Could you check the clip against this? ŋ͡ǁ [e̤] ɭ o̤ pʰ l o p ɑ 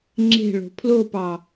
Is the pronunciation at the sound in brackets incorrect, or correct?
correct